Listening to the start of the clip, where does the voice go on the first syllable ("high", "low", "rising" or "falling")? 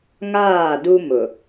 falling